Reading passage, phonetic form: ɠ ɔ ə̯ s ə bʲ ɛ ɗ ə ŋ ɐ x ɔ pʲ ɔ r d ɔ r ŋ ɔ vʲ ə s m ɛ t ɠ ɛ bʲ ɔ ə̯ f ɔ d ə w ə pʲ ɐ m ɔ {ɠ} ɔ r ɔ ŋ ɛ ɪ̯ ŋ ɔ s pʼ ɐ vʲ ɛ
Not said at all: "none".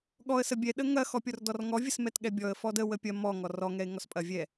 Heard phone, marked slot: ŋ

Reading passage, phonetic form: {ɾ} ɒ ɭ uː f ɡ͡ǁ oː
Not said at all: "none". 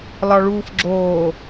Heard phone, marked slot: l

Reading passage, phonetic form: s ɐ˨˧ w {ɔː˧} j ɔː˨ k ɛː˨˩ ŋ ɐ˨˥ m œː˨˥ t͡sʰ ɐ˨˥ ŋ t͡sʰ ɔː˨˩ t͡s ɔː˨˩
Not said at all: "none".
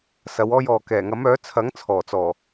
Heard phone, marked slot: ɔː˧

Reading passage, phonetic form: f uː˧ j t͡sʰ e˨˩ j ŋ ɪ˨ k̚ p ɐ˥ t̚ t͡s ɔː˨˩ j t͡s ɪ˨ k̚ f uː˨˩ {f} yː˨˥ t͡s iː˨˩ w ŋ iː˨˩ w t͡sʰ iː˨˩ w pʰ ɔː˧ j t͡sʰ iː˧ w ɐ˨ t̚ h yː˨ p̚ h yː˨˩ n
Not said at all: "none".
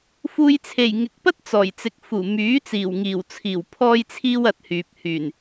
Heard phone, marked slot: m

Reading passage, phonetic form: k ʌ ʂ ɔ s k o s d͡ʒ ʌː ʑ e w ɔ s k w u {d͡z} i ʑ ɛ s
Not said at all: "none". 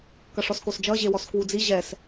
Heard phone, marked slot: d͡z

